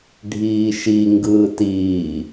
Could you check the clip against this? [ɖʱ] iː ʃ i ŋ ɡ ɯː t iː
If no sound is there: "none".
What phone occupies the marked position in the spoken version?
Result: ɖʱ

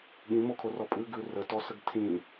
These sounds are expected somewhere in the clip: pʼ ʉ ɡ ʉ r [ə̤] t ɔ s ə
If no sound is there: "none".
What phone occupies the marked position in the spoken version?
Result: ə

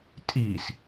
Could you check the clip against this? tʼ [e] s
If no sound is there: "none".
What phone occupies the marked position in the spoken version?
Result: i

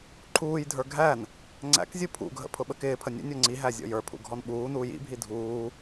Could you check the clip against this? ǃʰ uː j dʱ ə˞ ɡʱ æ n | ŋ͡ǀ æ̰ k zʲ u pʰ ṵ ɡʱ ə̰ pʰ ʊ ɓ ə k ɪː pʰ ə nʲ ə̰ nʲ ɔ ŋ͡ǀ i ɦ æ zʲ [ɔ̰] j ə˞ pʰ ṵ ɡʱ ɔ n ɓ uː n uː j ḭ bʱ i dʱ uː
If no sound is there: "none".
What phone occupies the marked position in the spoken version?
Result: ɔ̰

